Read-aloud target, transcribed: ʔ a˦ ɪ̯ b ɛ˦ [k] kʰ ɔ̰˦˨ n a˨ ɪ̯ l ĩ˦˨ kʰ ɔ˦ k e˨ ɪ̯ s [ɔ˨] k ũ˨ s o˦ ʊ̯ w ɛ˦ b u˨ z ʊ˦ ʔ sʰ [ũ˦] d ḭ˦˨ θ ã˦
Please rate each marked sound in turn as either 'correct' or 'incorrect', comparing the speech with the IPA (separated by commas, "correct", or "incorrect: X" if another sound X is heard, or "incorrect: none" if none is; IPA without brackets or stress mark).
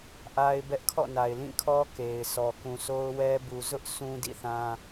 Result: incorrect: ʔ, correct, correct